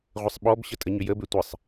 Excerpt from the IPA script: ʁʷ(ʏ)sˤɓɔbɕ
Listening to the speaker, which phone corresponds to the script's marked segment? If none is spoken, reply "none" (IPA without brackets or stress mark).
ɪ